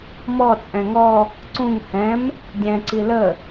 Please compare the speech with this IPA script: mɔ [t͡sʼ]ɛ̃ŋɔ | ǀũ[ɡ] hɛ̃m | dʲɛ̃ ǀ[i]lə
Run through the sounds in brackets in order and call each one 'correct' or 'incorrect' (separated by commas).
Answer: correct, incorrect, correct